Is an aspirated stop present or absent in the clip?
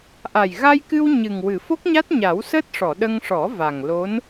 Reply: absent